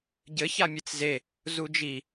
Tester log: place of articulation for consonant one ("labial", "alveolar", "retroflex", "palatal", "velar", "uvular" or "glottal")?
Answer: palatal